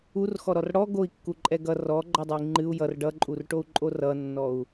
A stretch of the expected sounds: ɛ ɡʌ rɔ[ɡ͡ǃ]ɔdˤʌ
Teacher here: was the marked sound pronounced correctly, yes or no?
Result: yes